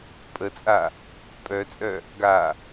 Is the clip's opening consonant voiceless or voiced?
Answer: voiceless